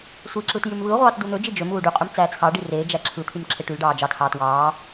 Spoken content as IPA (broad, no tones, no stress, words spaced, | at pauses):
sʷi ǁɯtjymβɯʁʷɑːt dun̪ød͡ʒi d͡ʒømuː ɖyqʼym t͡sæːt͡sxɑɖi reːd͡ʒæ ǁʰɯt̪ʰym ǁʰeʈylɖɑː d͡ʒɑthɑːt wɑː